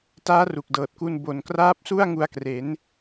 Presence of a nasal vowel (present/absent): absent